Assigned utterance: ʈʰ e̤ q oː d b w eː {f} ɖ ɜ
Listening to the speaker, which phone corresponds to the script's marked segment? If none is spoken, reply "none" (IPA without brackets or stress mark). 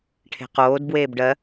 b